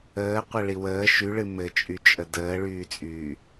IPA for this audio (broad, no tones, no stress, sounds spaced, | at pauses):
əː qʷ ɘ ɭ i w əː ʃ y ɭ ɨ m ɘ t͡ʃʼ y t͡ʃʼ ə d əː ɭ yː t͡sʼ yː